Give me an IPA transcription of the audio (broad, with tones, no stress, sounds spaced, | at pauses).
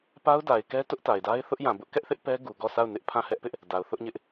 p a˦ ʊ̯ d a˨ ɪ̯ k ɛ˦ t ʊ˦ ʔ t a˨ ɪ̯ d a˦ ɪ̯ θ ʊ˦ ʔ j ã˨ b ʊ˦ ʔ k ɛ˦ ʔ θ ɪ˦ ʔ p ɛ˦ ɡ u˨ ɡ ɔ˦˨ s a˦˨ ʊ̯ n ɪ˦ ʔ pʰ ã˦˨ h ɛ˦ ʔ p ɪ˦ ʔ | d a˨ ʊ̯ θ ʊ˦ ʔ ɲ ɪ˦ ʔ